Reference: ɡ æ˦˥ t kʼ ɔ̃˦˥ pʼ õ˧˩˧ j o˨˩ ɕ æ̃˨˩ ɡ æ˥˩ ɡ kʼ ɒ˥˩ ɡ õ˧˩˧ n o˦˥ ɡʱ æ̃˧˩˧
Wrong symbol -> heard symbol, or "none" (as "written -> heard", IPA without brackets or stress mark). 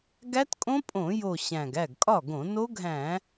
ɔ̃˦˥ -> õ˦˥